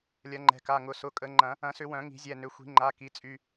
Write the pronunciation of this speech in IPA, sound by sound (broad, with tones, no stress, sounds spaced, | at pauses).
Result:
lʲ ɐ˨˩˦ ŋ͡ǃ ɛ̤˩˧˩ k a˩˧˩ ŋ ʊ˩˧˩ s ʊ˩˧˩ kʼ ə˨˩˦ ŋ͡ǃ ɐ̃˨˩˦ | ɐ̃˨˩˦ s ʏ˨˩˦ w œ̃˨˩˦ ŋ i̤˨˩˦ zʲ ɛ˩˧˩ n ʏ˩˧˩ xʷ i̤˨˩˦ ŋ͡ǃ a˩˧˩ k i˩˧˩ t͡sʼ y˩˧˩